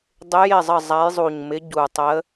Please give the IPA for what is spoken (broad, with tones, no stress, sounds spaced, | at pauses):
dˤ ɪ˧˥ j ɪ˥˩ zˤ ə˥˩ zˤ a˧˥ j zˤ u˨˩ ɲ m ɪ˧˥ ɟ u˨˩ tˤ ə˧˥